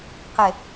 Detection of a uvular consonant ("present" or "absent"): present